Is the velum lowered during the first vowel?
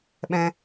yes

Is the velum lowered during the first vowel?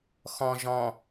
yes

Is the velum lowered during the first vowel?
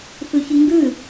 no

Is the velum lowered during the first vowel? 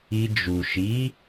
no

